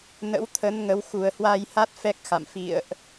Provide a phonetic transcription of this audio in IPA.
n ə̰˧˥ w t̪ʰ ə˨˦ n ŋ ə˨˦ w x u˨˩ ə̯ h w a˧ j h a˦˥ t̚ f ɛ˦˥ k̚ x a̰˧˨ m f ḭ˧˨ ə̯ ʔ

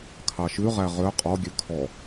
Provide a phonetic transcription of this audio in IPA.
kʰ ɑ ʃ ʉ ʁ æ ʁ ø qʼ ɔ ɡʲ ø kʰ ɔ

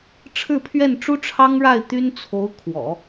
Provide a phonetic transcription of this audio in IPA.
ʈ͡ʂʰ ɻ̩˥˧ pʰ ɥ ɛ˥˩ n ʈ͡ʂ u˥ ʈ͡ʂʰ ɑ˥ ŋ ɻ a˥˩ ɪ̯ t̪ y˥ n t͡sʰ o˧˥ ʊ̯ kʰ w ɔ̰˨˩˦

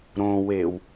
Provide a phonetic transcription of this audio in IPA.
ɾ õ w e w

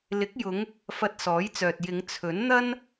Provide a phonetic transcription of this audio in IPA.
l ɪ˨˥ k̚ j ʊ˨˧ ŋ | f ɐ˧ t̚ s ɔː˨˥ j t͡s œː˨ t̚ j ɪ˨˧ ŋ t͡sʰ ɵ˨˥ n n̪ ɐ˥ n

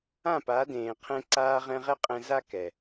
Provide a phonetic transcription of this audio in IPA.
ã˦˨ p a˨˦ d ẽː˨ qʰ ɛ̃˧ ǀ aː˧ ʁ ɛ̃˧ ʁ ɛ˦ qʼ ɛ̃˧ z a˦ k ɛ˨

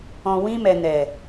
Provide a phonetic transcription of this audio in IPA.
ɔ̃˨ w ĩ˧ m ɛ˨ n ɛ˨

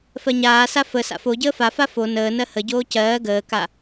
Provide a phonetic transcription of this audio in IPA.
f ɜ ɲ aː s a f ə s a̰ f o ɟ əː f a f a f o n əː n ɜ h ə ɟ oː c ɜː ɡ əː k a

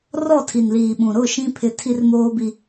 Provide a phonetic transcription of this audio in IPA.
r ɔ˦˨ tʰ i˨ n l iː˨ ɓ ũ˨ ɾ ʊ˦˨ ʃ ĩ˦ pʰ ɪ˦ tʰ i˦ r m oː˦ b i˦

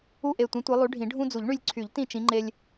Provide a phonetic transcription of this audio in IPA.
u˦˨ ʔ e˨˩ tʷ ĩ˨˦ tʷ e˨˦ lˠ y˨˦ ɖʱ ĩ˨˩˦ ɖʱ ũ˦ d͡z u˨˩˦ ʎ ɳ y˦˨ lʲ ǀʰ y˨˩˦ ʎ t ĩ˦˨ t͡ʃ ĩ˨˦ ŋ͡ǃ e˦ lʲ

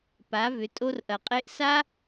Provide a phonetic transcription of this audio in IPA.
p a˩˧ v ʏ˩˧ tʼ o˧ r ʔ ɐ˩ qʼ e˧ ʔ s a˧

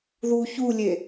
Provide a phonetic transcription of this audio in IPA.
ð u ç u lʲ e

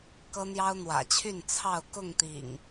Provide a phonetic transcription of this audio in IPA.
k ɤ˦ n̪ j ɑ˦ ʊ̯ n̪ w ä̰˨˩ t͡ɕʰ y˥˨ n t͡sʰ ɑ˥˨ ʊ̯ k ʊ˥˨ ŋ t̪ ḭ˨˩ ŋ

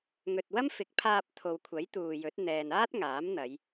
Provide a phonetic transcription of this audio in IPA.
ŋ ɵ˨ t̚ w ɐ˥ m f ɪ˨˥ k̚ pʰ aː˧ p̚ t̪ʰ o˨ w kʷʰ ɐ˨˥ j t̪ uː˨ j ɵ˨˥ t̚ n̪ ɛː˨ n aː˥ t̚ ŋ aː˨˥ m n̪ ɐ˨˧ j

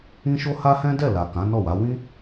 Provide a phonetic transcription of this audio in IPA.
ĩ˦ ʃ o˦ h a˦ h ɛ̃˦ d ɛ˦˨ l a˨ k ã˨˦ n ɔ˦˨ w a˨˦ w ĩ˦

